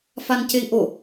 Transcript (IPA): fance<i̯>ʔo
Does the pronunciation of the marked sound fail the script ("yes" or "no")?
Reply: no